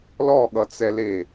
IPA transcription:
lɔɠʌt͡sɛle

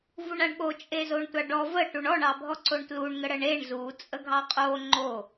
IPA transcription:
vuɳaɳɠo t͡ʃʼezoɳtʷaɖɔ və ʈuɳɔɳ ɑbʱɔǀoɳtluɳ ŋəɽəɳeɳ zu t͡sʼəɡʱɑqʼo ŋ͡ǃo

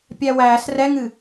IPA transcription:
pʲæwæːs rɛŋɨ

